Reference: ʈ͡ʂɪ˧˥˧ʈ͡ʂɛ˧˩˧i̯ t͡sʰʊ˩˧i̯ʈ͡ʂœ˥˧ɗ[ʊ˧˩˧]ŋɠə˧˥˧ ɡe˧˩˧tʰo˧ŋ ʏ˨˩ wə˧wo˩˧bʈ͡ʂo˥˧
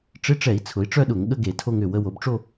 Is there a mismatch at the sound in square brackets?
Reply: no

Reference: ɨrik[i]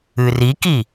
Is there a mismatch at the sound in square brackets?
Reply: no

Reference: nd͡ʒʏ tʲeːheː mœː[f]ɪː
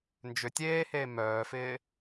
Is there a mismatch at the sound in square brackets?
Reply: no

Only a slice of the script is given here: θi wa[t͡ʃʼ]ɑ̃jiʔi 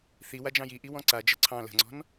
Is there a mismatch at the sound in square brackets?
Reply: yes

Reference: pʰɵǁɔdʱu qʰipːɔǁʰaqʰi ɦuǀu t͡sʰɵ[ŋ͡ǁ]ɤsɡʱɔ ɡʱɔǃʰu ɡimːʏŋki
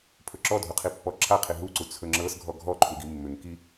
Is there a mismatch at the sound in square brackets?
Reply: no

